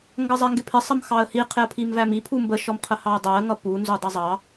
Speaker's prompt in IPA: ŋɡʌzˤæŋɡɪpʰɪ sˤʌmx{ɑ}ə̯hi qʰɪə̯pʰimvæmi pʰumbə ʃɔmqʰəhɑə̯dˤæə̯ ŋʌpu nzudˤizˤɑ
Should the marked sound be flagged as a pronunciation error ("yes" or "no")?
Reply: no